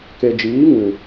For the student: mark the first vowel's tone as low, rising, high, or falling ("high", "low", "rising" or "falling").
low